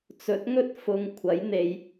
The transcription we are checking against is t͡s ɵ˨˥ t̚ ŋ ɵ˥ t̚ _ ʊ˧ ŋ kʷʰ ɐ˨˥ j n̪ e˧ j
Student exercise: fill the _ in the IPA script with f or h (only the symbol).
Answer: f